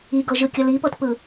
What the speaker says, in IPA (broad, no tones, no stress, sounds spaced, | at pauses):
i ɡ ɤ ʒ ɯ kʲ ʌ l i p ɤ t p ɯ